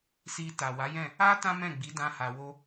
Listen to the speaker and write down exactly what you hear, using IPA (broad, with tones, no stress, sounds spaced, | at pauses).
s i˧ t a˨ w a˨˦ j ɛ̃˦˨ | a˦ t ã˦ m ɛ̃˦˨ ɡ͡b i˨˦ d ã˧ h a˨ w o˧